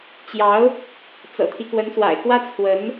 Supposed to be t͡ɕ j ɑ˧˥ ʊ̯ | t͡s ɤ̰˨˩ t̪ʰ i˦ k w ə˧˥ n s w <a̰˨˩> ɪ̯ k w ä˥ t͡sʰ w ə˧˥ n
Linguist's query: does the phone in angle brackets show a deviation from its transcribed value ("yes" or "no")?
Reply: no